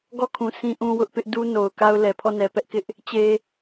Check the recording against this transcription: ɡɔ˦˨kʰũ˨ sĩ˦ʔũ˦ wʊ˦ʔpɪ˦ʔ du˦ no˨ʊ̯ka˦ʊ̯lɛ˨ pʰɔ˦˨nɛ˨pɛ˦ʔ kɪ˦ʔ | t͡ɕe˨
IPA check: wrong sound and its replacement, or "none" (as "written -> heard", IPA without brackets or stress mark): none